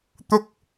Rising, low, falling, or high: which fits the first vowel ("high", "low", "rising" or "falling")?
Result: high